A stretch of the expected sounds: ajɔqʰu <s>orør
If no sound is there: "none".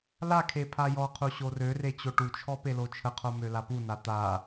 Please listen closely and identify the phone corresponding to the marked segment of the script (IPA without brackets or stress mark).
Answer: ɕ